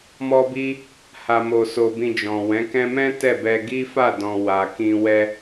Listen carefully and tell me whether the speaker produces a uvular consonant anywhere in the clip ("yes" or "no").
no